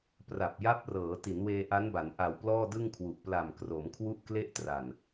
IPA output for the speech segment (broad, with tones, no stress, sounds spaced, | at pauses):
p r a˨˩ p̚ j a˦˥ p̚ r ɤː˩˦ t i˩˦ n w eː˧ ʔ a˦˥ n b a˩˦ n ʔ a˨˩ w p l ɔː˥˩ d ɯ˥˩ ŋ kʰ w u˨˩ ʔ p l a˨˩ m k r o˩˦ m kʰ w u˥˩ ʔ k l e˥˩ ʔ t r a˨˩ n